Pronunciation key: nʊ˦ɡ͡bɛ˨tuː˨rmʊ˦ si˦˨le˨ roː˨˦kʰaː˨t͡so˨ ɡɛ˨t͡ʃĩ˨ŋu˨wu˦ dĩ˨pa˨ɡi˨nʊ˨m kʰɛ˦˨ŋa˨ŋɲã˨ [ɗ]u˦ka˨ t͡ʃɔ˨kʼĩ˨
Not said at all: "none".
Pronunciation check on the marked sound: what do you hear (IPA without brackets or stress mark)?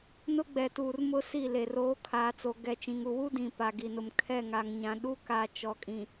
ɗ